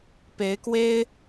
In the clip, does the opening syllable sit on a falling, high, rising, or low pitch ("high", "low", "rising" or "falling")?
rising